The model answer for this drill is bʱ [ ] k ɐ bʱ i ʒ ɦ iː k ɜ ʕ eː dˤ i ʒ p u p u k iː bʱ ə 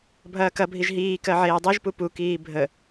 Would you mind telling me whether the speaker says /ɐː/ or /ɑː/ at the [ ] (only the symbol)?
ɐː